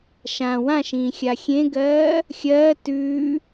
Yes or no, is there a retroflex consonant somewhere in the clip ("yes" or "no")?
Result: no